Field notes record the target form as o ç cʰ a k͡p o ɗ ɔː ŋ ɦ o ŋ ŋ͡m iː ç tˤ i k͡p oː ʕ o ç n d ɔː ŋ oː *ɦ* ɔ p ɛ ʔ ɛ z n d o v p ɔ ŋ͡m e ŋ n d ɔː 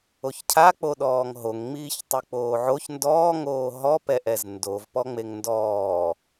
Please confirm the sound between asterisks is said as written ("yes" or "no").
yes